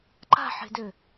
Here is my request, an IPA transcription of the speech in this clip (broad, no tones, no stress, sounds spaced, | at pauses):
ǃ a̤ ħ e̤ d ø